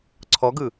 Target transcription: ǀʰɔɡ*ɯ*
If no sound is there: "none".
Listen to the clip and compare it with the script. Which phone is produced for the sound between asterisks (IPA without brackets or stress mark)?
ɯ